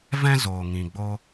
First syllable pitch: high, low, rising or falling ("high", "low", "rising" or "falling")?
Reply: high